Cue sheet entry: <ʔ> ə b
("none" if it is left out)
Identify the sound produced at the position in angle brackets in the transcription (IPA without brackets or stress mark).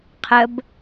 qʰ